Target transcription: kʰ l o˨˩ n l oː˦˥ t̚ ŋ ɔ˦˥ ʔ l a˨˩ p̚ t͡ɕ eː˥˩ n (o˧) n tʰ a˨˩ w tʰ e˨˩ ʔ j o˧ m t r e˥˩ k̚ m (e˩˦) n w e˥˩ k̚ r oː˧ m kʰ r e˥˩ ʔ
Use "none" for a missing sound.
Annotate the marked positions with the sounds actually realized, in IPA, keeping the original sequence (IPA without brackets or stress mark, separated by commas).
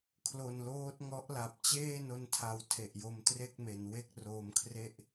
o˧, e˩˦